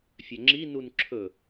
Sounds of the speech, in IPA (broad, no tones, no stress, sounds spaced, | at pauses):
fʲ œ ŋ͡ǁ i n u n ǁʰ ɵ